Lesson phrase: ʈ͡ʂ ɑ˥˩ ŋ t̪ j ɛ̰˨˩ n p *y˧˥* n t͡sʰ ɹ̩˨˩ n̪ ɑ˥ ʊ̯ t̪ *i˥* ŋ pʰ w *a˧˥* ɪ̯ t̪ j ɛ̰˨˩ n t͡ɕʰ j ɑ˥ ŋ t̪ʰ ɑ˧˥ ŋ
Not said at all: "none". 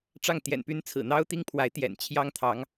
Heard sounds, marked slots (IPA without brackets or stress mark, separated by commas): y˧˥, i˥, a˧˥